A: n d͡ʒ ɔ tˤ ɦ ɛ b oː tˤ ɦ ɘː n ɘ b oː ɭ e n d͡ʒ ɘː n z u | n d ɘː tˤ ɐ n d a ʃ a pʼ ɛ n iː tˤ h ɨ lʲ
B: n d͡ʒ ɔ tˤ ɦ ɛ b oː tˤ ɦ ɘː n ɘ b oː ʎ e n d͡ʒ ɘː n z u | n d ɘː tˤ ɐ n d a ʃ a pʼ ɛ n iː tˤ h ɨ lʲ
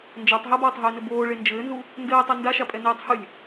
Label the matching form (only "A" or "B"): A